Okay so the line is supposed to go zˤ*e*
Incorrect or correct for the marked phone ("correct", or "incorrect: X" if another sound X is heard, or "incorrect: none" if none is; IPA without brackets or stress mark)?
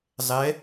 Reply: incorrect: ɛ